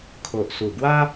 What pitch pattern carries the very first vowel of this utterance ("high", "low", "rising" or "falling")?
low